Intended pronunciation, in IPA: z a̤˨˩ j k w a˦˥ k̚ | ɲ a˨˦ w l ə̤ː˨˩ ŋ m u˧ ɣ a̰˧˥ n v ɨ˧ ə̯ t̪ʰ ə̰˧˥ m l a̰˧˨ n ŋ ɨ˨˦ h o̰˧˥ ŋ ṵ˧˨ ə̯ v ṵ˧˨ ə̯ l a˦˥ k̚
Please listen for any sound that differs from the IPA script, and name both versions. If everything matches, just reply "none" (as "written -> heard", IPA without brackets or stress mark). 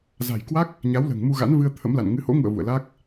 none